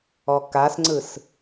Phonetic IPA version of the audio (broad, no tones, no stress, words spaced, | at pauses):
ɔkasŋ͡ǀɯs